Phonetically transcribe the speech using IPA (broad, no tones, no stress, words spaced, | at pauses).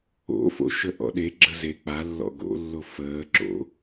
o̰fo̰ʃə ʔɔ̰ɗe ɡ͡ǁəze k͡palːɔ̰ ɡo̰lːo fəːǁo̰